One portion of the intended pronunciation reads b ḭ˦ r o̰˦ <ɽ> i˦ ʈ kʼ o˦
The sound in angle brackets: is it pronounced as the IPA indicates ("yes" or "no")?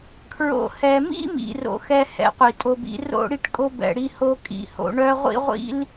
yes